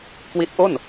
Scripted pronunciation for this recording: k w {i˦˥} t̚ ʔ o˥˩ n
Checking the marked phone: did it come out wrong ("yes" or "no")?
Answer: no